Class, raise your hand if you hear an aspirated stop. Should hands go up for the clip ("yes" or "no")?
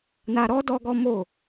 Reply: no